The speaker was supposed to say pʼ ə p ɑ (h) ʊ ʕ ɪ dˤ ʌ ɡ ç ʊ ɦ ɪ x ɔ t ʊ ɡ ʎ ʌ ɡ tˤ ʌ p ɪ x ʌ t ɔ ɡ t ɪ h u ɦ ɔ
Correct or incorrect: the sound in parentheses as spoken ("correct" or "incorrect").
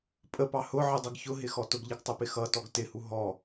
correct